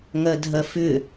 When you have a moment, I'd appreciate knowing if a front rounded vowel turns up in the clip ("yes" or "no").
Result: yes